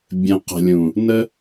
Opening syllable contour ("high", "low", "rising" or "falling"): low